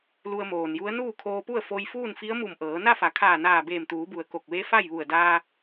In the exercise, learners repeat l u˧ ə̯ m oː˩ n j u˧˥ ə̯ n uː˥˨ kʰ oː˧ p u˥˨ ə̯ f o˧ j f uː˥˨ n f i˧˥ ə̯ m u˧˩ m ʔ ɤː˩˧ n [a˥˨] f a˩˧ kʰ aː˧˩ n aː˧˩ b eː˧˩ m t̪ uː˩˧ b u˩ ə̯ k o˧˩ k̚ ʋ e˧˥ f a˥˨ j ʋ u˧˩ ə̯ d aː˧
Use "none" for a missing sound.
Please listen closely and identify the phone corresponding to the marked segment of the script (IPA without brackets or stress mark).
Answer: a˥˨